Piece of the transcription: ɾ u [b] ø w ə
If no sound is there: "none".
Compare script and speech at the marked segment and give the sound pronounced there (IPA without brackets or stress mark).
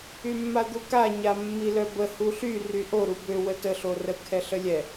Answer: b